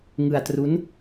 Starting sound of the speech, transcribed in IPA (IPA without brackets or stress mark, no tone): ŋ